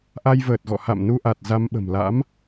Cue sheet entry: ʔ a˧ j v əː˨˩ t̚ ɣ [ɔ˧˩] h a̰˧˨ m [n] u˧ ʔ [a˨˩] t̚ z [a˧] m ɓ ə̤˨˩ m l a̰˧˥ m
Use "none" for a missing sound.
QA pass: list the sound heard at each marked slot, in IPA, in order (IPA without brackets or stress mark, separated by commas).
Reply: ɔ̰˧˨, n, a˨˩, a˧